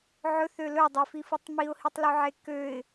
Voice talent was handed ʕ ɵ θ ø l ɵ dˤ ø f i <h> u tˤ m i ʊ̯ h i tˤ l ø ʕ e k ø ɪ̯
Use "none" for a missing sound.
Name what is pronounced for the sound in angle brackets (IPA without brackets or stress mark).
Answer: f